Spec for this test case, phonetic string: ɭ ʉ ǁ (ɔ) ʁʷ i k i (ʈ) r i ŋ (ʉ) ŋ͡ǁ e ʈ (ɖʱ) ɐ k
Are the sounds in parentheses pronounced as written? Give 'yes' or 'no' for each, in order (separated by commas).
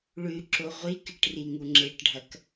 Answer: no, yes, no, yes